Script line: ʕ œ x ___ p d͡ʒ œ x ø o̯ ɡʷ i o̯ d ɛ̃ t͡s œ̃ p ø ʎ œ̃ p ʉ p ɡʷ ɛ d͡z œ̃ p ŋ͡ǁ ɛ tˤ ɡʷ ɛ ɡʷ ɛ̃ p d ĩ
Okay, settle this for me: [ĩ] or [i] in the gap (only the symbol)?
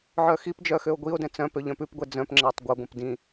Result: i